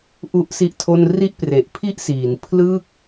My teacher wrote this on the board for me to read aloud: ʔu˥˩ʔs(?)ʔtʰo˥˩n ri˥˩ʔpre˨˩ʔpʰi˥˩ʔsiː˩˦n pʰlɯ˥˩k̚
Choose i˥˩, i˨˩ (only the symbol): i˥˩